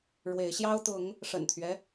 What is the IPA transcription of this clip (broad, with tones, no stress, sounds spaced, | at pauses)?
ɻ w e˨˦ ɪ̯ ɕ j ɑ˦ ʊ̯ t̪ ʊ˨˦ ŋ | ʂ ə̰˨˩ n t̪ʰ ɥ ɛ˦